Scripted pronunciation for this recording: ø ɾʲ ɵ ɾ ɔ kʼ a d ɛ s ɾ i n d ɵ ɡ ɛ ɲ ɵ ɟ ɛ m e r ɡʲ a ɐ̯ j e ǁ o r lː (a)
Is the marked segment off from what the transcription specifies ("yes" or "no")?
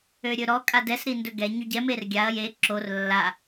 no